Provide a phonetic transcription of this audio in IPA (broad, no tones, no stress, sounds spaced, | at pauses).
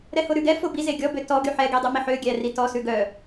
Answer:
ɾ ɛ h o ɾ ʉ ɡ ɛ f o b i z e ɡʲ ɔ b ø t ɔ ɡ y ħ ɛ ɡ e dˤ ɛ m i ħ ø ɡʲ æ r i t ɔ s ʉ ɡ œ